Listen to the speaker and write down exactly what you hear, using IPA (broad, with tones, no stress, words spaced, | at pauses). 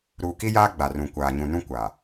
ɾuː˨ki˦jaː˦ ɡ͡ba˨rũ˨ kʷaː˨ɲũ˨nũ˦ kʷa˨